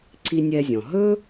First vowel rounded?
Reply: no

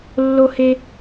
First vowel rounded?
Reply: yes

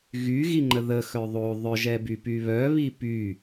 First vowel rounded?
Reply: yes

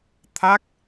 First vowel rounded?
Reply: no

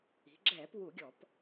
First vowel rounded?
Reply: no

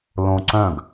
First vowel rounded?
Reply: yes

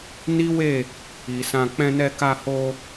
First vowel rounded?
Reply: no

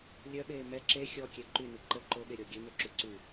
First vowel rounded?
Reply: yes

